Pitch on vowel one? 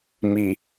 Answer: low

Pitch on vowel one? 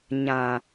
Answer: low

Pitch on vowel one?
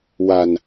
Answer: low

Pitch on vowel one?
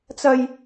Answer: high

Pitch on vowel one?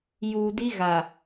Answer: low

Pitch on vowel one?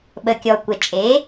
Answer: low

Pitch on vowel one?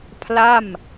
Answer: falling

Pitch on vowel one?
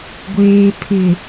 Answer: low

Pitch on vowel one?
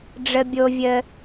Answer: low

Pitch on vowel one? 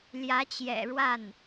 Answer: rising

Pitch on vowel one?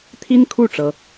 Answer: high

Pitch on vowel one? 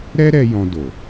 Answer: high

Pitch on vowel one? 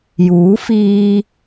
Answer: rising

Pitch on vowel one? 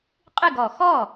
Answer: falling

